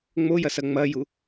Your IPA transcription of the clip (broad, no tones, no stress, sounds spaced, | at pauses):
ŋ͡m o j ɐ s ɐ ŋ͡m ɐ j u